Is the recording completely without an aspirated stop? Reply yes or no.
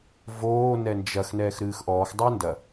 yes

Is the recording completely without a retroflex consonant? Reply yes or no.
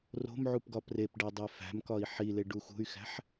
no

